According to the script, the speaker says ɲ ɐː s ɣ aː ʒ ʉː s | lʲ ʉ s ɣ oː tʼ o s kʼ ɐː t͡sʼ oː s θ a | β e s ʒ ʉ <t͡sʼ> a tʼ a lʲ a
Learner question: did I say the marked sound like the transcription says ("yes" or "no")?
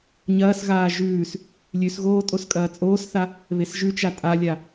no